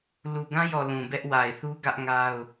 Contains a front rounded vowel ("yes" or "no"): no